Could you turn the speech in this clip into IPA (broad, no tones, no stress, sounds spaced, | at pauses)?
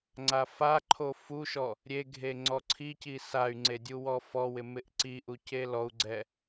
ŋ͡ǀ a f a ǃʰ o f u ʃ ɔ | ɾʲ e ɡʱ e ŋ͡ǀ ɔ ǀʰ i c i s a y̯ ŋ͡ǀ e dʲ u w ɔ f ɔ w ɪ m ɪ ʔ ǀ i ʔ u c e l ɔ u̯ ɡ͡ǀ ɛ